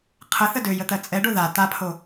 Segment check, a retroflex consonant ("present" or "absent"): present